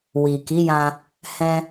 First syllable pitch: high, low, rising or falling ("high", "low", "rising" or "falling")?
low